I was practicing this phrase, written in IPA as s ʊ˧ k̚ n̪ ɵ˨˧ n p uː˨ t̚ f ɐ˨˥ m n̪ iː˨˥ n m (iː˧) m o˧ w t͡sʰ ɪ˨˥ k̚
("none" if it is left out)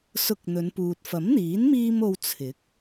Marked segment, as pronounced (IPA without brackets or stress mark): iː˧